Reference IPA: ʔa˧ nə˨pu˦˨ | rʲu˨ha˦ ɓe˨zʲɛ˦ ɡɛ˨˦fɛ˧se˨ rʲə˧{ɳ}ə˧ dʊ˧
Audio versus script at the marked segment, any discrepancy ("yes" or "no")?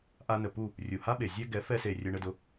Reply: no